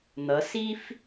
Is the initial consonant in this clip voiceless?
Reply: no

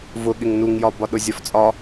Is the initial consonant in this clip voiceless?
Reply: no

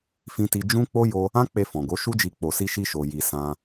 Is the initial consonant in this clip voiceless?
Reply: yes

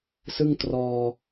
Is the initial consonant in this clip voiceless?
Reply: yes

